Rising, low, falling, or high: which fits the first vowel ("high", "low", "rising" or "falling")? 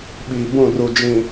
low